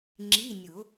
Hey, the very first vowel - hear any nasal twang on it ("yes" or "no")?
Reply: no